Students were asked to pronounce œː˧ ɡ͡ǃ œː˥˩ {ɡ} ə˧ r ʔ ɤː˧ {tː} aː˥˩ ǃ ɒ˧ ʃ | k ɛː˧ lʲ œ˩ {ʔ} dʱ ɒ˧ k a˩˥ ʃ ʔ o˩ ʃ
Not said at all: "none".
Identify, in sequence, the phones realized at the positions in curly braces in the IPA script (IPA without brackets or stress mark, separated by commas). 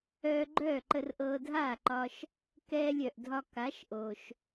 ǃ, dʱ, ʔ